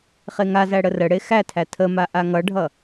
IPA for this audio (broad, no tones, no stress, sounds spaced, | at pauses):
χ e ŋ a z æ ɽ ə r ə ɽ e x æ tʰ æ tʰ ə m a ʔ a ŋ ʌ ɖʱ ʌ